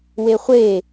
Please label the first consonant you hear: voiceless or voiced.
voiced